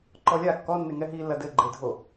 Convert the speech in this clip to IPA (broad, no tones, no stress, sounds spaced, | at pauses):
ǃ ɔ lʲ a kː ɔ nː e ŋ ɛ ɦ i lː ɐ d ɘ ɡ͡ǃ e dʱ o